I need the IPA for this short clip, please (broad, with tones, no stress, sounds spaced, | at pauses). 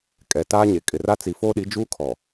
kʼ ɛ˨ t aː˦ ɲ e˨ kʼ ɪ˨ r a˦ t͡s i˨ f oː˦ ɗ i˨˦ d͡ʒ uː˦ kʰ ɔ˨